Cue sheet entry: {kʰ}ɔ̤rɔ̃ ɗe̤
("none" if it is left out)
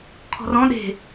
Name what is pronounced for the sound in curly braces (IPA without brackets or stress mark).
kʰ